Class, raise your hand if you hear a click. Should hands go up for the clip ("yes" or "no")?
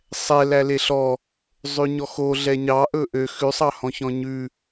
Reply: no